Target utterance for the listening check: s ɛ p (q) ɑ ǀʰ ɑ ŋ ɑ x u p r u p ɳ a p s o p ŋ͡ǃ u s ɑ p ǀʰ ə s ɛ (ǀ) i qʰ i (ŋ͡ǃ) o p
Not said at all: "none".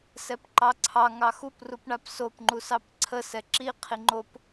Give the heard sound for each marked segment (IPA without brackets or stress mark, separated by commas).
ǃ, ǁ, ŋ͡ǃ